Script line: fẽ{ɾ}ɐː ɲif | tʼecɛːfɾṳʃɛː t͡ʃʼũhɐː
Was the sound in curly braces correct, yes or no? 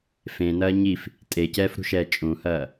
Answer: no